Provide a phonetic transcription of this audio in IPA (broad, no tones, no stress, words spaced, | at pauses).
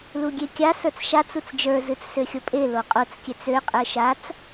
luɡʲekʲa sə˞t͡sʃat͡s ut͡sd͡ʒə˞ zɨt͡ssøxʲopʼe loqʼot͡s kʲøt͡sø qʼə˞ʃat͡s